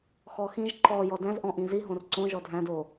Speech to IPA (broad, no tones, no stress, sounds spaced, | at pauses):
x ɔ x ĩ ʒ ǃ ɔ j ɔ d æ̃ z ʔ ɔ̃ ʔ ĩ z i ɦ õ r ǀ õ ʒ ɔ dʱ æ̃ d o